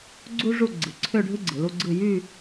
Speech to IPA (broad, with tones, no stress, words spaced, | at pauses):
ɡ͡ǀu˥ ʐu˥˧ ɡ͡ǀɯ˩˧ǀʰø˥˧ɖʱɯ˥ ɡ͡ǀɯ˩˧lu˥ɡ͡ǀɯ˥˧ jy˥˧